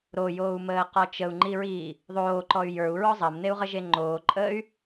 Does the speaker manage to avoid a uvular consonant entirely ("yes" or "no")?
no